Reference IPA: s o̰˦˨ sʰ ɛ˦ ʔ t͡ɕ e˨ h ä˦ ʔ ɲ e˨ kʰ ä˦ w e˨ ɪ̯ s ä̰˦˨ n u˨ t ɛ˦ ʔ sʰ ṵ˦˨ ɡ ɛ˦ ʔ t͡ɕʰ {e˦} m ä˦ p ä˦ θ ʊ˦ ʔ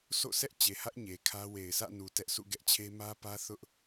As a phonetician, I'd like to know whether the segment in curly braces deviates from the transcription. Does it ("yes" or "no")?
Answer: no